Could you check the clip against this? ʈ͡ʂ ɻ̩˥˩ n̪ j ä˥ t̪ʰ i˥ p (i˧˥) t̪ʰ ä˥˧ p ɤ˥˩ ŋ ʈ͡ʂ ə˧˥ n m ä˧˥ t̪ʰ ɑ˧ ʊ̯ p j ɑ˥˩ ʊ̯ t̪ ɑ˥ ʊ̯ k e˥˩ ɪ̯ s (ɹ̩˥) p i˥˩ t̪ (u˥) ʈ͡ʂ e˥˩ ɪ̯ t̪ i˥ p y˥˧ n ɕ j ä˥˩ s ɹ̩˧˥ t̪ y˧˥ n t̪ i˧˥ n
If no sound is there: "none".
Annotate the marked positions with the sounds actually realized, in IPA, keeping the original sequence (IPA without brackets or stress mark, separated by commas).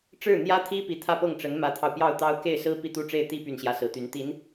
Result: i˧˥, ɹ̩˥, u˥